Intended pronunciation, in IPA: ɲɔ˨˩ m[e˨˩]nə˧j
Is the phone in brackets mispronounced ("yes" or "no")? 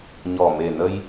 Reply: no